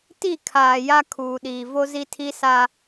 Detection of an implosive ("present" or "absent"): present